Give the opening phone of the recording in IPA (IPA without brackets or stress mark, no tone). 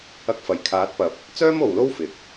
ɐ